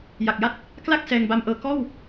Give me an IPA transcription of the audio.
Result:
ja˨˩k̚ja˥˩t̚ | kla˥˩k̚ sɛː˧ŋba˦˥mʔɤː˧ kɔː˥˩w

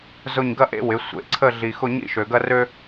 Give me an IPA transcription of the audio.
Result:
zʊ˥˧ɲ ɡɐ˥ʔḛ˥ wɪ˩˧ sʷḛ˩˧ǀʰə˥˧ɮi˧ xʊ˥˧ɲḭ˥˧ʃø˧ɡɐ˥ rø˥

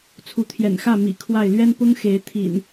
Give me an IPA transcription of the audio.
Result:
t͡sʰu˨˦t̪ʰjɛ̰˨˩nxä˥˨ mḭ˨˩ kʰwa˥˨ɪ̯ lɥɛ˦npʊ˦ŋ xe˨˦ɪ̯ t̪ʰḭ˨˩n

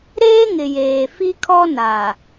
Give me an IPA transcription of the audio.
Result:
ɾeː˦ŋɪ˨jeː˨ fi˦kʰɔ˦ na˨

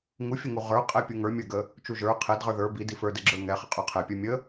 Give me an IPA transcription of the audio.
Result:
ŋufʲəŋu ʁə˞ qʼɛpʲuŋə˞ mʲə˞ɡə | t͡ʃuʒə˞ qʰɛdʁə˞ ðə˞ bi difə˞dɛɡ͡ǁə˞ ŋɛχə qʼə˞qʰɛpʲə˞ mʲə

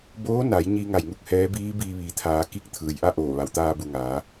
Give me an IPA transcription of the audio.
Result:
boː˧˥na˩˧j ɲi˧ ŋa˧˩jŋu˥˨k̚hɛː˧˥ biː˧˥ biː˧ʋiː˩t̪ʰaː˩˧ki˧˥k̚ t̪ʰɯː˩jʔa˥˨ʔoː˧˩ ʋa˩w t̪aː˧bu˩ŋaː˩˧

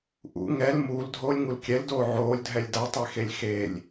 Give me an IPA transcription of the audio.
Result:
ʔṵ ŋɛl muːldʱoːlʲŋul kʲɛldoː ʕoːlʲdʱɛlʲ datˤexelʲ xelʲ

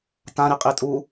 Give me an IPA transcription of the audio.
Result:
tãɾi qʼitʼu

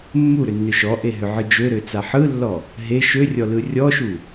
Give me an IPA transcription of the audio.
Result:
mːuɾʏnːʏ ʃɔʔeɦʏʕɯ d͡ʒøɾøt͡sa ħɯlːɔ | ɦe ʃørʲɔlɯ rʲɔʃu

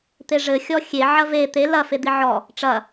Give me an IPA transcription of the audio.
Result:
t̪eʐɘ xʲɔxʲe ʕɐve t̪e lɐ fed̪iʕɔ | ʈ͡ʂɐ

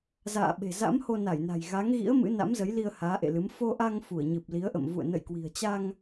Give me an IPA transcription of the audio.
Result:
za̰ː˧˨ɓe̤˨˩ za̰˧˥mho˧na˧˩jna̤˨˩j ɣa˨˦ŋɣḭ˧˥ə̯ mɨ̰˧˥ na̰˧˥mzə˨˦jli˧ə̯ haː˨˦ʔḛ˧˨lɨ˨˦m fo˧ʔa˧ŋ fu˧˩ə̯ɲɨ˨˩p̚li˨˦ə̯ʔə̰˧˨m vṵ˧˨ə̯ nə̰˧˨jkwi̤˨˩ə̯ t͡ɕa˧ŋ

